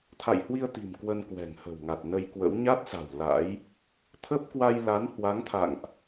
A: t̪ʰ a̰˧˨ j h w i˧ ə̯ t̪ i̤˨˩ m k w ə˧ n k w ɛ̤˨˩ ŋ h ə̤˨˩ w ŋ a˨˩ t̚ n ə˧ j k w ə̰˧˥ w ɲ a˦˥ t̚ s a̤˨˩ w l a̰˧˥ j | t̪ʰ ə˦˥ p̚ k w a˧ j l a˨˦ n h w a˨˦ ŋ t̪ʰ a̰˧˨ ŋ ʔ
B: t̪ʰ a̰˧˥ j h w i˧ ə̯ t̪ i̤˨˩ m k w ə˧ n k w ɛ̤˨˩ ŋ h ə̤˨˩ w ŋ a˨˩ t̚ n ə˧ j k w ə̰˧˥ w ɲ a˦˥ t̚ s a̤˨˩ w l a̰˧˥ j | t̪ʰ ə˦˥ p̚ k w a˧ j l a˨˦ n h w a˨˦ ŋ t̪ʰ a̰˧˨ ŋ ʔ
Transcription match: A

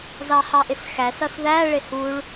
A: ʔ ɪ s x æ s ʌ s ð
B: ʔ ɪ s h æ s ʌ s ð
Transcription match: A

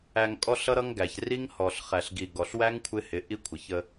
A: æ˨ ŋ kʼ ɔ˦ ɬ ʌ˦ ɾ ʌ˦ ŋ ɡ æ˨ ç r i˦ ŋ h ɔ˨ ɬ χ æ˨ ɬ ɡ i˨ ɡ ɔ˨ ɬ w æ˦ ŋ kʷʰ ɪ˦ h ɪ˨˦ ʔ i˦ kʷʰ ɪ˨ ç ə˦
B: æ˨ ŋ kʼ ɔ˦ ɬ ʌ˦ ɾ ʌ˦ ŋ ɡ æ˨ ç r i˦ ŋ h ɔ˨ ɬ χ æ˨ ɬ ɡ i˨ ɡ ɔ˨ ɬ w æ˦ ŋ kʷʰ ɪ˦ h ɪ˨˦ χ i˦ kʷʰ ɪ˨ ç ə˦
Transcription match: A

